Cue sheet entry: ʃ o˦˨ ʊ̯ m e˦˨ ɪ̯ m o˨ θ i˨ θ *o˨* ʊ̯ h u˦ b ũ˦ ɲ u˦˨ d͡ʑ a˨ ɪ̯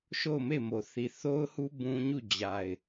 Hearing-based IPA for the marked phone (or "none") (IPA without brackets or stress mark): o˦